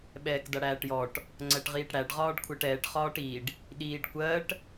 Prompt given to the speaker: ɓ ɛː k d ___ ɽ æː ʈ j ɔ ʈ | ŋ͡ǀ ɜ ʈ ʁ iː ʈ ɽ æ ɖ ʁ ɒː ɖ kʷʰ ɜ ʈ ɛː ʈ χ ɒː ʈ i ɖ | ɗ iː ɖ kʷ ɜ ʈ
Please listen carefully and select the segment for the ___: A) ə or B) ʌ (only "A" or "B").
B